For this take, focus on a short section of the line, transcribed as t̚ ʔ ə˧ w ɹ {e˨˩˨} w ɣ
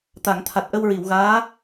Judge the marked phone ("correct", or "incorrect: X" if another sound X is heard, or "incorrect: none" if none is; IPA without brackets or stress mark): incorrect: i˨˩˨